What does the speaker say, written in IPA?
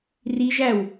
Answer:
r i ʒ æ w

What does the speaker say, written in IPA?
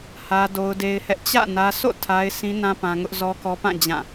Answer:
h ä˦ d o˦ ʊ̯ d e˦ ɪ̯ h ɛ˦ ʔ t͡ɕ ä̰˦˨ n ä˦ s o̰˦˨ tʰ a˦ ɪ̯ s ĩ˦ n ã˦ p ã˦ ŋ ʊ˦ ʔ z ɔ˦ k ɔ˦ p ã˦˨ d͡ʑ ã˦˨

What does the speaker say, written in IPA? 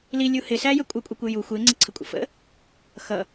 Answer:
l i lʲ u h ɪ s æ j ə kʷʼ ə kʷʼ ɪ kʷ ɪ j u xʷ ɪː ŋ͡ǀ ɪ ǀʰ ə kʷʼ ə̰ f ə̰ | x ʌ

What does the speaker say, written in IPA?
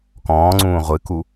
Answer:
k ɔ̃ː ŋ͡ǀ ũː ʁʷ ɨ k u

